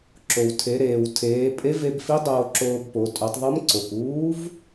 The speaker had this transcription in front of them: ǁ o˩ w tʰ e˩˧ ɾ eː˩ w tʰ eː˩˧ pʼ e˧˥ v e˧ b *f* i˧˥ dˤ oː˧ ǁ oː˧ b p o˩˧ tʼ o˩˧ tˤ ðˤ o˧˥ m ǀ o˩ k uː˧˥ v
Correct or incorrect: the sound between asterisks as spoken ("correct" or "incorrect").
correct